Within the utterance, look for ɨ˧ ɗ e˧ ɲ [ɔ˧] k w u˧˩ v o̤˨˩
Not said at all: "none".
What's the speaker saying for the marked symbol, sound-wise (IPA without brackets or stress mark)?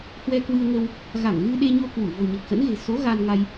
o˧